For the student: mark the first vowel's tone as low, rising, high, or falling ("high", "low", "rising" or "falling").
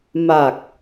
low